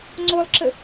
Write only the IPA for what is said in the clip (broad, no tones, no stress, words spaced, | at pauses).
ŋ͡ǀolˠǁə